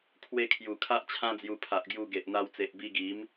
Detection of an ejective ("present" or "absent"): absent